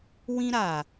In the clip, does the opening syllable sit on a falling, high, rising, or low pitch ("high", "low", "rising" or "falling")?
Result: high